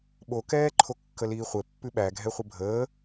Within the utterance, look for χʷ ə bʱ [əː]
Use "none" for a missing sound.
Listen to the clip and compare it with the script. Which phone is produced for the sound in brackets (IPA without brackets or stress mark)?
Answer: əː